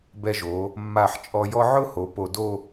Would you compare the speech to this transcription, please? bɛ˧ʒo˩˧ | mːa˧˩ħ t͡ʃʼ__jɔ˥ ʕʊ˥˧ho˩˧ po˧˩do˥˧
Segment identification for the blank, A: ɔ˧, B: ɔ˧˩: A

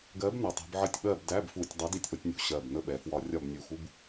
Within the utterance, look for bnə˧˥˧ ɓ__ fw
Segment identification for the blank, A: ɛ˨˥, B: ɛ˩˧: B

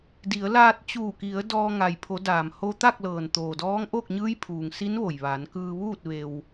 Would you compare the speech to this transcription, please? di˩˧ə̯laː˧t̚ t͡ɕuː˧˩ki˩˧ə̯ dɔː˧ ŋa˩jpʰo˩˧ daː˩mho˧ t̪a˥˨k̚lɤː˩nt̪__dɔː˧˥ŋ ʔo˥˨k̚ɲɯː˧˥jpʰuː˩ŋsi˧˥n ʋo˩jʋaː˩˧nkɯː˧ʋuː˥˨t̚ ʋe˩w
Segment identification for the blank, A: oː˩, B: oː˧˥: A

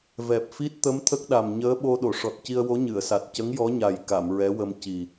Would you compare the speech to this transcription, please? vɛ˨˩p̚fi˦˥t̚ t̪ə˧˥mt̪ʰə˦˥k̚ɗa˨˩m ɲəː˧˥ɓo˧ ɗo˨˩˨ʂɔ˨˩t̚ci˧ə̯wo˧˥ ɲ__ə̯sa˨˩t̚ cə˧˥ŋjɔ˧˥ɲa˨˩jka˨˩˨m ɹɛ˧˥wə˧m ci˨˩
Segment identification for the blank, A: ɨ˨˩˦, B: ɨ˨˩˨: B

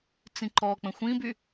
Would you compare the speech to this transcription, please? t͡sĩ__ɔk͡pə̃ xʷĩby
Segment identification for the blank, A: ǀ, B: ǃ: B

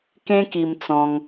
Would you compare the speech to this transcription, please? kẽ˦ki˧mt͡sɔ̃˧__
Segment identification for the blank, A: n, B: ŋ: B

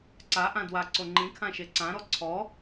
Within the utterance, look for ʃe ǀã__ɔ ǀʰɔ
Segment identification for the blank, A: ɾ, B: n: A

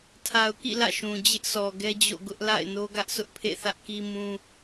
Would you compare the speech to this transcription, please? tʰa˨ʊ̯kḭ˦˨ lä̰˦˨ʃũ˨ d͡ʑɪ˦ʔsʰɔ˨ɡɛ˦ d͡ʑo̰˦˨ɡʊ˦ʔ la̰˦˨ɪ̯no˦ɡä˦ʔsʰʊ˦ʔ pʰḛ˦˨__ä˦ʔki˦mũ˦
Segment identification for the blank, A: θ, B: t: A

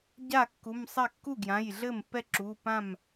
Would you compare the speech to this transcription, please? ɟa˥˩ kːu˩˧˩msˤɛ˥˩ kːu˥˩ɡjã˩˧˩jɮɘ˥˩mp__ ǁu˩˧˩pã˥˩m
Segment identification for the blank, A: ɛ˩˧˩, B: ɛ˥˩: B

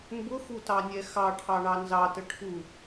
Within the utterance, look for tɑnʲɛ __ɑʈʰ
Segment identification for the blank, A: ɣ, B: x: B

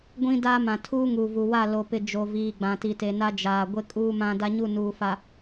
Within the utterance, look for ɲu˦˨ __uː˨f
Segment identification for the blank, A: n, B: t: A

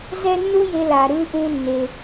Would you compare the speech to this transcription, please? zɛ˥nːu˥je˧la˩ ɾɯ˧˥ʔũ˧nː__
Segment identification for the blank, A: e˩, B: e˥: A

